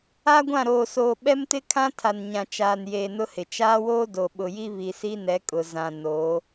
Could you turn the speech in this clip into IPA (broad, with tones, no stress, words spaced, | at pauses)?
a˦ɡʷã˦˨ɾoː˨soː˨ ɓɛ˦mtɪ˦kʰã˦ tʰa˨nɲã˨t͡ʃaː˨njeː˨ nʊ˦hɪ˨ t͡ʃaː˦woː˦ do˨ɓʊ˨ji˦ βi˨si˦nɛ˨˦ kʼʊ˨zã˨noː˨˦